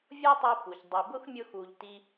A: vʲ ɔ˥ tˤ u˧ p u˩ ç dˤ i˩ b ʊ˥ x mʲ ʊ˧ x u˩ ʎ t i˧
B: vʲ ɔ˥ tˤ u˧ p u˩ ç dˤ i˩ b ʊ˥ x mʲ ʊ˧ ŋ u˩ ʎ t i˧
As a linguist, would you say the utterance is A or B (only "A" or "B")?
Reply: A